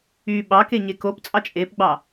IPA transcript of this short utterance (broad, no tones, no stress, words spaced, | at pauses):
y ɓɑkeɲe kop t͡sʼɑt͡ʃʼepɡ͡bɑ